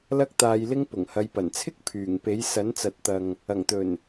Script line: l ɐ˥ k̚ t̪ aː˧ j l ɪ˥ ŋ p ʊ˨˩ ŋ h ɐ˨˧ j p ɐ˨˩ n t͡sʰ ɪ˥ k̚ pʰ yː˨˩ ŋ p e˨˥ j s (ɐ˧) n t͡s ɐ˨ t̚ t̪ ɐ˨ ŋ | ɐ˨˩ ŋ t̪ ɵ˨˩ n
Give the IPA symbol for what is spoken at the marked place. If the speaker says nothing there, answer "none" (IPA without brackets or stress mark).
ɐ˨˥